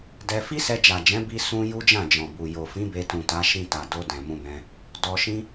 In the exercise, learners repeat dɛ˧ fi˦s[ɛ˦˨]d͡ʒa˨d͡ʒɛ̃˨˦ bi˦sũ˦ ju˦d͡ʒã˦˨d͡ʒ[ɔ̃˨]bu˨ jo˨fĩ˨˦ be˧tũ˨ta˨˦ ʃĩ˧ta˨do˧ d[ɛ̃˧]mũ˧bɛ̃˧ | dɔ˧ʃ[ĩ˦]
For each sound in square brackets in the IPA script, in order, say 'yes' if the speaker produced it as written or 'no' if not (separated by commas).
no, yes, no, yes